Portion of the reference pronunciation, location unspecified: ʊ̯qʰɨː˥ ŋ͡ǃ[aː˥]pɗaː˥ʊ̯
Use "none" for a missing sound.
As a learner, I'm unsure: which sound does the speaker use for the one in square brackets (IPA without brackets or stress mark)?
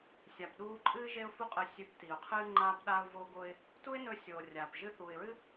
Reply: aː˥